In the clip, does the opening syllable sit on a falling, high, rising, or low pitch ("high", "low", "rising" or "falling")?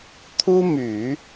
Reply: high